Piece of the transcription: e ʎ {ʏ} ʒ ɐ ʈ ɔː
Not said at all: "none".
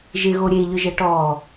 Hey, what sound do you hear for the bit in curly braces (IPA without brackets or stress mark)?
ʏ